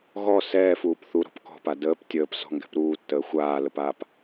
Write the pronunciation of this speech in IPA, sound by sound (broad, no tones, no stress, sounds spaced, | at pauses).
ɣ ɔ s ɛː f uː p θ u ɾ ɔ̤ p k ɔ̤ p a d əː p tʲ əː p s ɔ̤ ŋ ɡ ɛ̤ p ɾ uː tː əː xʷ aː l ə p aː p